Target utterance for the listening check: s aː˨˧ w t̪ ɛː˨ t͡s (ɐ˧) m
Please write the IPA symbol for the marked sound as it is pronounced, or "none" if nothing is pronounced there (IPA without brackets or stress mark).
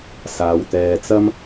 ɐ˥